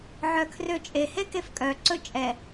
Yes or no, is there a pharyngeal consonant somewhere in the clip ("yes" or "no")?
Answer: yes